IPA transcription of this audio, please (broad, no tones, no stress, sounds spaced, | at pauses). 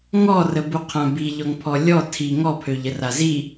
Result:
ŋ ɔ r ə b u qʰ ã b i ʎ ɔ ŋ pʰ ɔ lʲ ɔ tʰ i ŋ ɔ pʰ ø ʎ ə r a z i